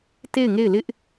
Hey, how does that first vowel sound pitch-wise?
falling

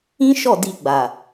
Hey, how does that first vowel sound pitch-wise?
high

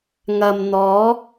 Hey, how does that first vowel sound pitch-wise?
low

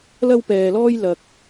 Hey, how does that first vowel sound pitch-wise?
high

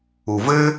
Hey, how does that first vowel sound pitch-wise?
low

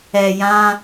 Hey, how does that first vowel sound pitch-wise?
low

